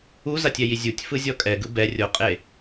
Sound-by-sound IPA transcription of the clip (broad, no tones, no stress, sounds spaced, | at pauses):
u z a tʲ ɛ j i zʲ u tʲ f ɯ zʲ ɔ kʼ ɛ ɡ ɯ b ɛ rʲ o qʼ e